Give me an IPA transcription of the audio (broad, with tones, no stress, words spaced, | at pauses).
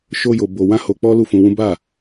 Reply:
ʃo˦jo˧ bo˧ wã˦ho˧k͡pɔ˦ lu˦˨fũ˧wũ˦ ba˦˨